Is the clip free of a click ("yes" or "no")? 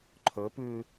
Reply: no